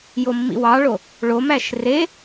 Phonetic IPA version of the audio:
j o mː ḭ w ɑ ɭ o | ɭ o m æ ʃ r e

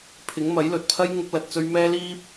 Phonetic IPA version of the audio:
pʰ ɪ˨˥ ŋ m ɐ˨˥ j l ɵ˨ t̚ pʰ ɐ˥ j ŋ ʊ˥ k̚ l ɐ˧ t̚ t͡s ɵ˥ ɥ m ɛː˥ l iː˥ p̚

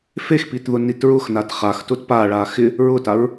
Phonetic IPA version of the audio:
f e x p i t ð ʊ n i t ɹ ʊ x n a t χ a x t ʊ t p a ɭ a x ɪ | ɹ ʊ t a ɹ

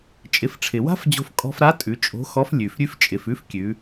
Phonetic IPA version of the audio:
t͡ʃʼ ɪ˩˧ f ʈ͡ʂʰ ɪ˩ w a̤˥ f d͡ʑ o̤˧ f kʼ ɔ̤˧ f ɾ a˧˥ tʼ ʉ˩˧ t͡ʃʼ o̤˧˥ x ɔ˧˥ f lʲ ʉ˩ f ɾʲ ʉ˥ f t͡ʃʼ ɪ˩˧ f ʉ˧˥ f kʲ ʉ˩˧

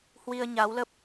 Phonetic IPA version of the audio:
h w i˧ ə̯ ɲ a˨˦ w l ə˦˥ p̚

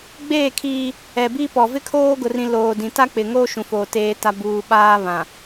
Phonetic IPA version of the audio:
ɡ͡b eː˦˨ kʰ iː˦ | ɛ˨ b iː˦ p ɔ˨ v ɪ˦ kʰ oː˦ ɡ ʊ˨ r ĩ˨ l oː˨ d ĩ˨ t a˦ k͡p ɪ˨ ŋ oː˦ ʃ ũ˨ f oː˨ t eː˨ t a˨ b uː˨ ɓ aː˦ β ã˨

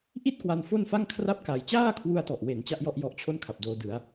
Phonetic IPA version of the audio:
ʔ i˥˩ t̚ k w a˧ n f o˥˩ n f a˥˩ ŋ kʰ r a˥˩ p̚ k a˧ j t͡ɕ aː˥˩ kʰ w u˧ a̯ t ɔ˨˩ ʔ w e˩˦ n t͡ɕ a˥˩ ʔ j ɔ˥˩ ʔ j ɔ˦˥ ʔ t͡ɕʰ o˥˩ n kʰ a˨˩ p̚ d oː˧ d ɯ˩˦ a̯

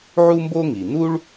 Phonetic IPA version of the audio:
ʕ u˥ m b o˥ ŋ i˩ n u˥ ɭ

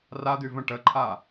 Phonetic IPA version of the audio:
r a d̪ y v ə̃ ʈ ə ǃʰ a

